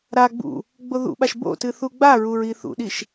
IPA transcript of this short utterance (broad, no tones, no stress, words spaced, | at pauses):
ɾa ɡ͡bṵ | ɡ͡boðṵɓaʃ bo̰ tɨθuɡ͡baɹuɹ iθṵɗiʃ